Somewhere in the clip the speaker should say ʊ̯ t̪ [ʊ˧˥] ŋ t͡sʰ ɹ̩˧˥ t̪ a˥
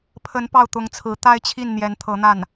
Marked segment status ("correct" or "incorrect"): correct